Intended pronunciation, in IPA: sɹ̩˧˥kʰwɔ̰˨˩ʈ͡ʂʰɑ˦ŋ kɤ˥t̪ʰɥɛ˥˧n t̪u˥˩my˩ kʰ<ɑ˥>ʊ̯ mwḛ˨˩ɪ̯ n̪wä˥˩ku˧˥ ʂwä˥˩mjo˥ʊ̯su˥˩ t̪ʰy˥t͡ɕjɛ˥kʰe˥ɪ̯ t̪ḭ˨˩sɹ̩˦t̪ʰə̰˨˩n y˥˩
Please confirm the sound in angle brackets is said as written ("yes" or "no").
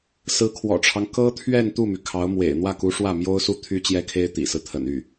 no